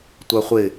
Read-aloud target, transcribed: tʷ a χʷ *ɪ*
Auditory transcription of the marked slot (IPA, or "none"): ɪ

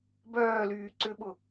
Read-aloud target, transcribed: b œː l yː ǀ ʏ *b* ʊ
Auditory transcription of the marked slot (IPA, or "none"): ɓ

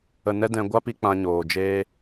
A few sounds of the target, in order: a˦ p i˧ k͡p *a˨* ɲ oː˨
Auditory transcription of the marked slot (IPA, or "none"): ã˨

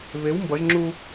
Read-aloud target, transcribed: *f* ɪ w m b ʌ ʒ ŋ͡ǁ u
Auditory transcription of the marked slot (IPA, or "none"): β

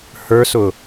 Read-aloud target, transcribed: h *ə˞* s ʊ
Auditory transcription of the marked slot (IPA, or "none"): ə˞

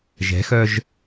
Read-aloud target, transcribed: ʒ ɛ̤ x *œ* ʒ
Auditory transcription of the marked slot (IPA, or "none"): œ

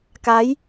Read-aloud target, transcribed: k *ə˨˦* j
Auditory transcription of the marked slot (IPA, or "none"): a˨˦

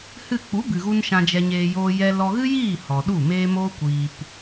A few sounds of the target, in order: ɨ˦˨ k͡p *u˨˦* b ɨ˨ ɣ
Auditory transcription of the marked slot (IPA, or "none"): u˨˦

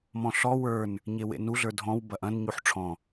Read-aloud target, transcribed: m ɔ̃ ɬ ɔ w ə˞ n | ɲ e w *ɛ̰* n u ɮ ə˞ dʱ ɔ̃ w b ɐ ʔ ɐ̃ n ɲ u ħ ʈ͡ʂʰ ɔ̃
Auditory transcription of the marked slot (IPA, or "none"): ḛ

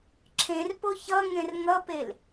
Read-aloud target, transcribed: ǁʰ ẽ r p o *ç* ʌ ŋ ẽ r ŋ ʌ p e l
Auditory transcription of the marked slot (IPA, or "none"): ç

